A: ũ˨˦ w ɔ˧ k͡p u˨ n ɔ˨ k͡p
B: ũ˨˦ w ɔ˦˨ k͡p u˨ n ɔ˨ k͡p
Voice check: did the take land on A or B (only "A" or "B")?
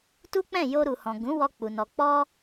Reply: A